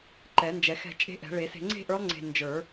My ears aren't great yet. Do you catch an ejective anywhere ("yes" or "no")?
yes